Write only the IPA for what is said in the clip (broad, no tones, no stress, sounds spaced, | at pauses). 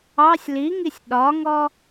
ɑ sʲ l i ŋ i sʲ ɗ ɒ ŋ ɔ